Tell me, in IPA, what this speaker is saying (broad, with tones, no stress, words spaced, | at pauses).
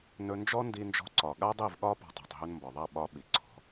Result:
nɵ˧nd͡ʒɔ˦ndi˧ nd͡ʒɔ̤˧ǀɒ˨ɠa˦ dˤi˦˨vɠɒ˦ pɔ̤˧tˤa̤˨tˤ ɦɵ˧nmbɒ˨ðˤa˦˨ ɓɒ˦ ɓi˨ǀʰɔ̤˨˦